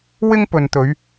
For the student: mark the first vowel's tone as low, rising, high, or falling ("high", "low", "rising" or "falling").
high